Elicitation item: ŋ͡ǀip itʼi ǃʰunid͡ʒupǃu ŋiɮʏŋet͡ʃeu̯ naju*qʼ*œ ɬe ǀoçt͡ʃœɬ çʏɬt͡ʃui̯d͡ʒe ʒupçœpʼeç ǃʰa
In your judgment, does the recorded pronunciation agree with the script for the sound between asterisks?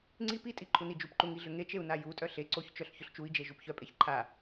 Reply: no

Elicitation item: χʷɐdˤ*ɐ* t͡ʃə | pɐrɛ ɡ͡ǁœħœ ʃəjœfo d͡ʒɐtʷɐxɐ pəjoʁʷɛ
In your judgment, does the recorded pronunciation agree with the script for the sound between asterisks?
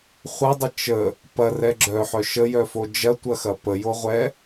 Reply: no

